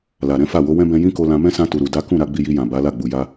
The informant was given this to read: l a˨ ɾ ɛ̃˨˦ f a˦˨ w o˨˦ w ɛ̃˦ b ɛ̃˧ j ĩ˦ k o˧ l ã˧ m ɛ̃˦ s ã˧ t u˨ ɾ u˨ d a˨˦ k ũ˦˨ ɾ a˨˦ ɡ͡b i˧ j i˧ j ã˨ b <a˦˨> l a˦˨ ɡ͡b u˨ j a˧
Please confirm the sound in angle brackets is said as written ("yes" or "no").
no